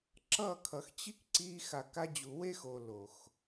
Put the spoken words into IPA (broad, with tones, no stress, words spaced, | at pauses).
ǁʌ˦˨kʰʌ˨xt͡ɕi˦k ǀi˦ xa˨ka˧d͡ʑu˨we˦x o˧ lo˨x